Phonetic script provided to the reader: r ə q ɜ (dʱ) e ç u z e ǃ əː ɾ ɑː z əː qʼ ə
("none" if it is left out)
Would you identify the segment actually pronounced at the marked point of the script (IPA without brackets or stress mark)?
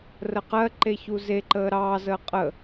ǃ